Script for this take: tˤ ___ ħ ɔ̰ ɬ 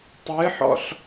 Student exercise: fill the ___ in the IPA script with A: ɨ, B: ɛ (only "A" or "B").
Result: A